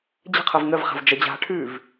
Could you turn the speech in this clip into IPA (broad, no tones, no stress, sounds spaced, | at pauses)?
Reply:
d͡ʑ ə̤ qʰ ɤ v ŋ ə v χ a̤ v d͡ʒ ə d͡ʑ a̤ ʈʰ ʉː v